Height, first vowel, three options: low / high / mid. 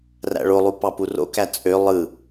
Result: low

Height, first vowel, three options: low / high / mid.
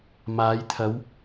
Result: low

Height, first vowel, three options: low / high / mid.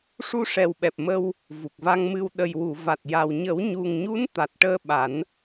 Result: high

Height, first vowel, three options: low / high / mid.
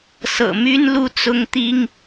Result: mid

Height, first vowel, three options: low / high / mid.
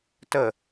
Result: mid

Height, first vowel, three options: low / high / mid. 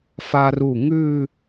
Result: low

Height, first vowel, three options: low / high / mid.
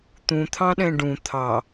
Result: high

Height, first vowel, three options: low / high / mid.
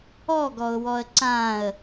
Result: mid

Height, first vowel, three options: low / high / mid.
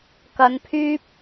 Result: low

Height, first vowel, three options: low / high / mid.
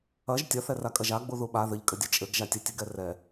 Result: low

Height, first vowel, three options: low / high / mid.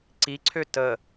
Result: high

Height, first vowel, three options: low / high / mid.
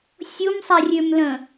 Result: high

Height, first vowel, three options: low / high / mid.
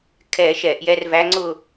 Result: mid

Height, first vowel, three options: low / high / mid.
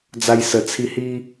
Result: low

